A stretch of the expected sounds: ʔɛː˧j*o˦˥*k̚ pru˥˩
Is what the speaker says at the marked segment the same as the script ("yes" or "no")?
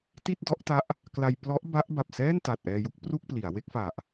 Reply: no